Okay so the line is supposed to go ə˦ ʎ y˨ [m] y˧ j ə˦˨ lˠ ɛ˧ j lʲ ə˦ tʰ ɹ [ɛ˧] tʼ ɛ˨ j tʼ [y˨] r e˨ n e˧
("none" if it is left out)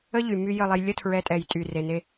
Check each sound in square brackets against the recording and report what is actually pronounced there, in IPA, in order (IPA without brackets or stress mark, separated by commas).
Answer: m, ɛ˧, y˨